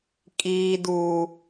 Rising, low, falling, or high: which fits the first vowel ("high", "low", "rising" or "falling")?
high